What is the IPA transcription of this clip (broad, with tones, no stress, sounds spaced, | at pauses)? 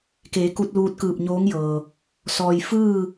k eː˩˧ k u˧ t̚ l uː˧ t̚ k ɯː˧˩ p̚ ɲ oː˧˥ ŋ j ɤː˩ | s ɔː˩ j f ɯː˥˨